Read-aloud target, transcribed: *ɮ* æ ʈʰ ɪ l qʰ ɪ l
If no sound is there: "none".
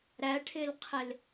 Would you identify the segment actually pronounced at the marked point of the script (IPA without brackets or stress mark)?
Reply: ɾ